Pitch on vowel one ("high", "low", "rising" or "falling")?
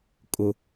low